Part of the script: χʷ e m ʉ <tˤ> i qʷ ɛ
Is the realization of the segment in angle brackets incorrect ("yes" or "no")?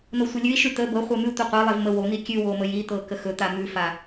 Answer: yes